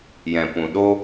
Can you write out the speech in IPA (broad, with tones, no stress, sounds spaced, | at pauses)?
j ɛ̃˨ p ũ˨ ɗ o˦